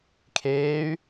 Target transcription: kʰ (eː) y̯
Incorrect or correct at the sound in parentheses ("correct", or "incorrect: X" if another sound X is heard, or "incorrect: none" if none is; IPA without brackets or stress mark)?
correct